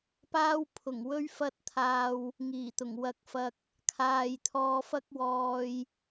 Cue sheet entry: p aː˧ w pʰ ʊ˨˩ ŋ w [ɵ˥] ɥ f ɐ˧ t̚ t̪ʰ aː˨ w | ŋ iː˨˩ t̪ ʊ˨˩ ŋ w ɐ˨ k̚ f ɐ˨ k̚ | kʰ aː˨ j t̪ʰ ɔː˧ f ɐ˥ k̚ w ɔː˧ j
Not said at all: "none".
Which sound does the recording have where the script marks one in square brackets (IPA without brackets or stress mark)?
ɵ˧